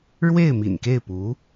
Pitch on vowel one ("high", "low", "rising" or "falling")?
falling